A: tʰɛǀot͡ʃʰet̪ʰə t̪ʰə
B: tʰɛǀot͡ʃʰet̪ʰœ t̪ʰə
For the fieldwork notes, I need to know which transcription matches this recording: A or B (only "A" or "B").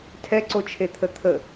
A